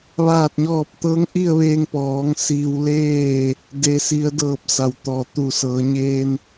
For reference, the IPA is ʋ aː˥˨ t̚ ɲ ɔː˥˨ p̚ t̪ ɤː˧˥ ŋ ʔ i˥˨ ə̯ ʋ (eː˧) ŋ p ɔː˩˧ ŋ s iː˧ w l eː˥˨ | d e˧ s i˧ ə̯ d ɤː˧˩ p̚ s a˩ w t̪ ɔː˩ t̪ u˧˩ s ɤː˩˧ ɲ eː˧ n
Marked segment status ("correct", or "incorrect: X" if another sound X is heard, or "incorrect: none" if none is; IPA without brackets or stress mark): correct